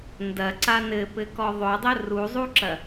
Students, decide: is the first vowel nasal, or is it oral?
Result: oral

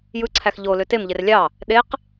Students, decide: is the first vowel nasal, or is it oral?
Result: oral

